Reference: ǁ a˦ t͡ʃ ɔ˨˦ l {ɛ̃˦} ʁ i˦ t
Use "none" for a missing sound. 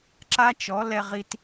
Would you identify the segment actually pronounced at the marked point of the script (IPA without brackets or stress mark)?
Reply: ɛ˦